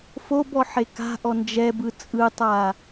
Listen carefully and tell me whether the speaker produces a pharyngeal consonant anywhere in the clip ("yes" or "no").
yes